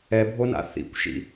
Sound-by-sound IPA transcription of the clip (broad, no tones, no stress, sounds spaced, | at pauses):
ɛ bʱ o n a̰ θ ḭ kʷ ʃ ḭ